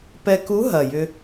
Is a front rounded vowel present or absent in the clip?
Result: present